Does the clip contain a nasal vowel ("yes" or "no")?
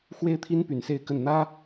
no